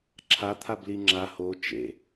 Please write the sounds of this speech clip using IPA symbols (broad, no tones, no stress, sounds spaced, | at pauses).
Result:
ǁʰ a t̪ʰ a b l i ŋ͡ǁ a h o t͡ʃ ḛ